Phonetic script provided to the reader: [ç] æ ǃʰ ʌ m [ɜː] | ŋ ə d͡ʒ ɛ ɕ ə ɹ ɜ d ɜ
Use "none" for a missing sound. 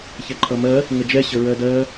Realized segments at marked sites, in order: ç, ɜ

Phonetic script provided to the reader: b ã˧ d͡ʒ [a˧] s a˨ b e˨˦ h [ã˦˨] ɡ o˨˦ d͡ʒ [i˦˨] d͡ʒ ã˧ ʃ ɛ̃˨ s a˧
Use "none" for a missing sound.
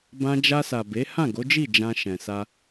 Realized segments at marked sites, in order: a˧, ã˦˨, i˦˨

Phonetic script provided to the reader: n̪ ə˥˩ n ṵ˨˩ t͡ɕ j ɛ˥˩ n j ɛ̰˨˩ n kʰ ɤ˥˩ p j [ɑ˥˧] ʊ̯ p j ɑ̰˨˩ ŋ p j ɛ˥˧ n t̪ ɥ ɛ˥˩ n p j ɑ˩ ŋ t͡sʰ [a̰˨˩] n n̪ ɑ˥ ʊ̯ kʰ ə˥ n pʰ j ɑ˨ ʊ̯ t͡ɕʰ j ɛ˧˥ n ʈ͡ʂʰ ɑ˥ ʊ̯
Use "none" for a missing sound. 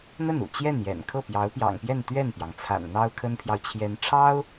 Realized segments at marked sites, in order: ɑ˧˥, a̰˨˩

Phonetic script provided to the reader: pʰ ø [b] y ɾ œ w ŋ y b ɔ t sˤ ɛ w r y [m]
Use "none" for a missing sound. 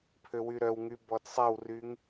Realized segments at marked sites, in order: w, ŋ

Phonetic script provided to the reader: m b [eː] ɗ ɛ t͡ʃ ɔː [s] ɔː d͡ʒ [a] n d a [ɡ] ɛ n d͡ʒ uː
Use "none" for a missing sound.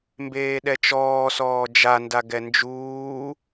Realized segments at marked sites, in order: eː, s, a, ɡ

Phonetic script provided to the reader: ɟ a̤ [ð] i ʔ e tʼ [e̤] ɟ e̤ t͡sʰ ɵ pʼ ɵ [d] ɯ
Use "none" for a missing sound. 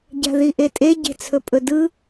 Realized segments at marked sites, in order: ð, e, d

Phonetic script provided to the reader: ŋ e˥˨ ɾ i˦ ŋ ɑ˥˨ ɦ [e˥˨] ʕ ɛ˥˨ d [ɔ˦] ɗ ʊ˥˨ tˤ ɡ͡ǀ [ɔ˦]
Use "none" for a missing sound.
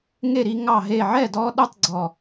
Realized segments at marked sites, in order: e˥˨, ɔ˦, ɔ˥˨

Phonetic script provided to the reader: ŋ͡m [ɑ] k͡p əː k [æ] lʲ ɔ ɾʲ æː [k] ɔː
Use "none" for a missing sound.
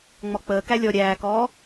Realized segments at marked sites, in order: ɔ, æ, k

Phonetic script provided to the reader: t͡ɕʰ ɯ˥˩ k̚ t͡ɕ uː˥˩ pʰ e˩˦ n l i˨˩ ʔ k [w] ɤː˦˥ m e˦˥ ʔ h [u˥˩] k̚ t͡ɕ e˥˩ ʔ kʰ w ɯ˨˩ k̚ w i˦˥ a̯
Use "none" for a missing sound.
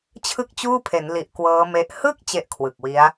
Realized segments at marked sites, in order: w, ɯ˥˩

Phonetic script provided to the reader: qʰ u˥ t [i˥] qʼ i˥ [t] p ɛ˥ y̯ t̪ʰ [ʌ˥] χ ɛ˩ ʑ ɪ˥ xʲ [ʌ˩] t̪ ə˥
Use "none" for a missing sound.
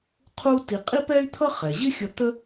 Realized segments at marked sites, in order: i˧, none, ʌ˥, ʌ˧

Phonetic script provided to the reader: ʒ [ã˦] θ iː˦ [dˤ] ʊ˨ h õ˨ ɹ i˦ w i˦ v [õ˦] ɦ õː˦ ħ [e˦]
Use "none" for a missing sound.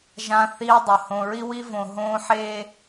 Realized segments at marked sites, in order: ã˦, dˤ, õ˨, e˦

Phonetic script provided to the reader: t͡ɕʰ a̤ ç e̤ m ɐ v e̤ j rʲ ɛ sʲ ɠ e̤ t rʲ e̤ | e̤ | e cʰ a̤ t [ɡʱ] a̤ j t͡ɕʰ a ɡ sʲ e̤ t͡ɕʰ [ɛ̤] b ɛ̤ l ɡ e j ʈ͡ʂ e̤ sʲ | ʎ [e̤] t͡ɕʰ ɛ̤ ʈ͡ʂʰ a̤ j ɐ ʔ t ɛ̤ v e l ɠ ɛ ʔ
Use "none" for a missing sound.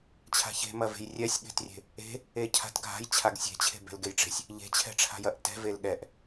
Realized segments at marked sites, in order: ɡʱ, e̤, e̤

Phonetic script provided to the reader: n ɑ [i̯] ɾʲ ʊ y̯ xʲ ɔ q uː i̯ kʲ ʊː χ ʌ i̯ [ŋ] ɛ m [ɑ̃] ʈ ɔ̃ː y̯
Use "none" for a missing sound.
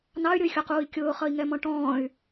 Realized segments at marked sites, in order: y̯, ŋ, ɔ̃

